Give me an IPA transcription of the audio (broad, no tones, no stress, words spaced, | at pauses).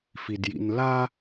fidjḭnla